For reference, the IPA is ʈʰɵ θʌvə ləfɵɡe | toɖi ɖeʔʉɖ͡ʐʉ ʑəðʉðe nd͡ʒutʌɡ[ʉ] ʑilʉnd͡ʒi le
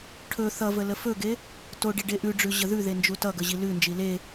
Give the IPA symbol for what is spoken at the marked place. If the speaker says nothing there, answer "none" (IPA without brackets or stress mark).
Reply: ə